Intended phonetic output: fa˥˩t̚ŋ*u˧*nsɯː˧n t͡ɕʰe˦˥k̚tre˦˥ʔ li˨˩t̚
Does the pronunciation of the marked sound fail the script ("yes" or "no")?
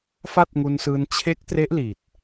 no